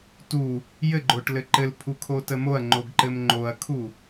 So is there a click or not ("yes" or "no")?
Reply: yes